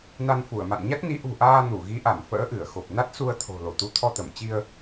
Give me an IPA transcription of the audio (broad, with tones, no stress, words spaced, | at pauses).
na˧nfu˧˩ə̯ma̰˧˨n ɲa˦˥t̚ni˨˦ ʔṳ˨˩ʔaː˧ nu˧˩ɣi˨˦ʔa˧˩m fə̰ː˧˥ʔɨ˧˩ə̯xo˨˩p̚ na˦˥t̚su˧ə̯t̪ʰo̤˨˩ lo˧˩t̪u˨˦t̪ʰɔ˧t̪ə˧˩m t͡ɕi˧ə̯